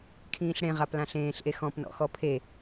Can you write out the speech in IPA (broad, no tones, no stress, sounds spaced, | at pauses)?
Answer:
kʰ ĩː ɬ ɽ ẽ ʁ a p l ã ɬ ẽː ɬ ʔ e x ɔ̃ p n ɔ̰ x ɔ pʰ e